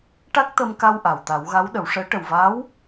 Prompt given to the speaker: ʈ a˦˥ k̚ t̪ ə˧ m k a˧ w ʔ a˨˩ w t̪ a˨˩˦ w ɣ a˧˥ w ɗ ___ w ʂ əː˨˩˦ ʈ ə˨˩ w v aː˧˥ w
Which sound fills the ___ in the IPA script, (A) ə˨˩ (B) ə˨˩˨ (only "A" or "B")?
B